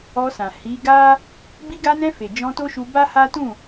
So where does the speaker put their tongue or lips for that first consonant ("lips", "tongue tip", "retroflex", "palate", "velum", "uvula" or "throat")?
tongue tip